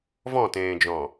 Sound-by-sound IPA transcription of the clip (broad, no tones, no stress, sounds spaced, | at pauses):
v ɔ̃ t ẽː d͡ʒ ɔ̃